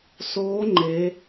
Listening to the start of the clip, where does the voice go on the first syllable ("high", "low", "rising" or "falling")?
rising